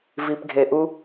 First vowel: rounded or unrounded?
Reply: unrounded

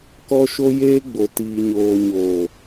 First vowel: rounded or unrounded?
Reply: rounded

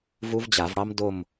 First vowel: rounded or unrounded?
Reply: rounded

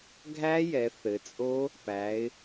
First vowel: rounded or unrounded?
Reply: unrounded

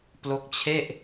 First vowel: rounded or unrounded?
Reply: rounded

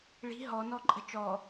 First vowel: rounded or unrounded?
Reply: unrounded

